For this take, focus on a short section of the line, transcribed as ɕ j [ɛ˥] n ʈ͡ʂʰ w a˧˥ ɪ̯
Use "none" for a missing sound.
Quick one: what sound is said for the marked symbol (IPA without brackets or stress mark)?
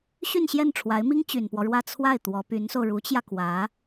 ɛ˥˩